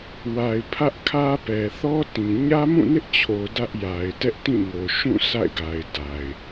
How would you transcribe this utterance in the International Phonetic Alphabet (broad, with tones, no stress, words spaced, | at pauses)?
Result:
wa˨ɪ̯ pʰä˦ʔkʰä˦pɛ˨ θɔ˦tĩ˨ ɲä˦mũ˦˨nɪ˦ʔt͡ɕʰo˨ dä˦ʔja˨ɪ̯ tɛ˦ʔtĩ˦˨ŋo˨ ʃũ˦˨ sʰa̰˦˨ɪ̯ɡa˨ɪ̯ da˨ɪ̯